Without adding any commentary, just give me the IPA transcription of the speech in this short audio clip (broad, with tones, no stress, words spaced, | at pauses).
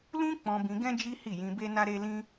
lũ˦ k͡pɔ̃˧ bĩ˧ɡɛ̃˦ d͡ʒi˦hi˦˨jĩ˧ be˦na˦ɾe˦lĩ˦